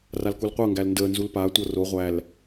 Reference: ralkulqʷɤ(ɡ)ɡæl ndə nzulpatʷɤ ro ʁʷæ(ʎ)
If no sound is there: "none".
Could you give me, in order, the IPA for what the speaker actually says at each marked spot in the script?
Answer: ŋ, l

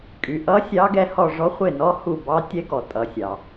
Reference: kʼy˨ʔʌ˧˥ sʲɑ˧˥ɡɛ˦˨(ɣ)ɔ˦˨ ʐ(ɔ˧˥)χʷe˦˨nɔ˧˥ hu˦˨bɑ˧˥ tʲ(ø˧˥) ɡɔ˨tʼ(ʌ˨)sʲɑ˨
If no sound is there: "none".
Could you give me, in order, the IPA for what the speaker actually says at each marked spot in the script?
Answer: h, ɔ˧˥, ɛ˧˥, ʌ˨

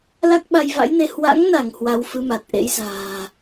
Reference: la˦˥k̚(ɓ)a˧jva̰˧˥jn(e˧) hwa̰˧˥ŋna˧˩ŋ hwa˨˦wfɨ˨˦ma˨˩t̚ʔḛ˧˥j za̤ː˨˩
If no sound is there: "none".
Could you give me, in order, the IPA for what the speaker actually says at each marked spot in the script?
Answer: ɓ, e˧

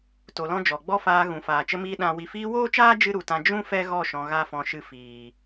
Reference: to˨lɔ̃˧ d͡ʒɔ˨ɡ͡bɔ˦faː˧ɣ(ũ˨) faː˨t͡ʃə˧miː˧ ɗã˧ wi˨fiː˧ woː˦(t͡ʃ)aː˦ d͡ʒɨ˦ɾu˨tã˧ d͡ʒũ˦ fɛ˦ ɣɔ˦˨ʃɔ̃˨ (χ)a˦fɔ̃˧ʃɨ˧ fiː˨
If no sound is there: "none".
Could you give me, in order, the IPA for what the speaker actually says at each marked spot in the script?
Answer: ũ˨, t͡ʃ, ɣ

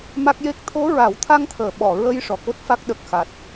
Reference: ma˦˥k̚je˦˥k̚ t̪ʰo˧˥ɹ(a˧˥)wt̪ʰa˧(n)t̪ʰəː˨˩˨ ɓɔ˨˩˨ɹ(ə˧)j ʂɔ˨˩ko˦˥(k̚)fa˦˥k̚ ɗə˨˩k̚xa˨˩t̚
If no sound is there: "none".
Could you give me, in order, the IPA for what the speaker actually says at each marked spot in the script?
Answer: a˨˩˦, ŋ, ə˧, t̚

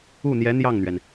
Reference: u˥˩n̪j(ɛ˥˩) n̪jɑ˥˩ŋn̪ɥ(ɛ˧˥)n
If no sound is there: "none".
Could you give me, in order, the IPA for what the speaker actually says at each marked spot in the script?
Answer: ɛ˧˥, ɛ˩

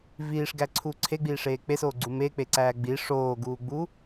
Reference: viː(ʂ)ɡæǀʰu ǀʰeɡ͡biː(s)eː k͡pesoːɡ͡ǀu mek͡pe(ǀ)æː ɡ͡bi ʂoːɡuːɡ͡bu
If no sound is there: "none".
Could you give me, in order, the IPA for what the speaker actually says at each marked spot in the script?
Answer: ʂ, ʂ, ǀ

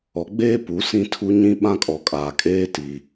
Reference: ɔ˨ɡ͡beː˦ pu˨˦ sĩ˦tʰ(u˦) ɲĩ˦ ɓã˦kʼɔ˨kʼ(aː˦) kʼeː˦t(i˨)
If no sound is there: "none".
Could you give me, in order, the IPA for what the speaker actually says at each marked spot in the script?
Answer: u˦, aː˨, i˨

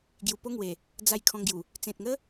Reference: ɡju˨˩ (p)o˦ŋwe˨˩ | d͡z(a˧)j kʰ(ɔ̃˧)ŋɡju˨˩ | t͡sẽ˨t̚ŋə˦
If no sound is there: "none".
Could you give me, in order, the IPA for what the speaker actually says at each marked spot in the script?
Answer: p, a˨˩, ɔ̃˧

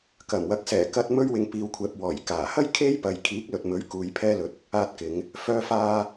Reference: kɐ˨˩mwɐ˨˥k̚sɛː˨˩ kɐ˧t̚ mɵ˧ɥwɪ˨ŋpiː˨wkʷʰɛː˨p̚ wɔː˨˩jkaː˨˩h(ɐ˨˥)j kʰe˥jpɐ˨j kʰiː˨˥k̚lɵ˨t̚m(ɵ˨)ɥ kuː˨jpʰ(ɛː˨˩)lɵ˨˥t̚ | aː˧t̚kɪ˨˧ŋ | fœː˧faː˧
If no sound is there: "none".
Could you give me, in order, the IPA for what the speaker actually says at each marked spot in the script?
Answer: ɐ˥, ɵ˨˥, ɛː˧

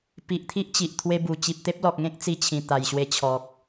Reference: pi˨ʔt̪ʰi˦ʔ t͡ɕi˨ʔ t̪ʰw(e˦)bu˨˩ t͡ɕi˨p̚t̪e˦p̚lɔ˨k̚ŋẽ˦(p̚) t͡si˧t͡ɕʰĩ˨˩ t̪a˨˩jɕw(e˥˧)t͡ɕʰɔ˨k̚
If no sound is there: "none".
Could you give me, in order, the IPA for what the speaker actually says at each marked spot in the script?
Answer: e˦, k̚, e˧

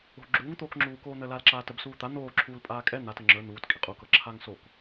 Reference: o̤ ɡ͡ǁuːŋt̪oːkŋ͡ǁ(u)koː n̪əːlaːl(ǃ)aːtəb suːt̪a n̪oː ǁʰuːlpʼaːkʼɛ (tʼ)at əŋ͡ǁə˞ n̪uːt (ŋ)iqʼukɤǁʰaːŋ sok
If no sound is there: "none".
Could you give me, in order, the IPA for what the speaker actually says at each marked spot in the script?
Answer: uː, ǁ, n̪, kʼ

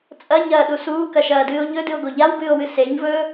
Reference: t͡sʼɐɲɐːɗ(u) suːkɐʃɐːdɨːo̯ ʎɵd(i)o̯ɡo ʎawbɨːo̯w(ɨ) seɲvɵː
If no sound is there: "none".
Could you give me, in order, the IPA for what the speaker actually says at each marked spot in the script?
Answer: u, ɨ, ɨ

